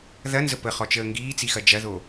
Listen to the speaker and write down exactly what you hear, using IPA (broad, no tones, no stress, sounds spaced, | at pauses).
ð ɐ n z ə p ə χ ɔ t͡ʃ əː ŋ ɡ iː t͡s i x ɐ d͡ʒ ɐ ð o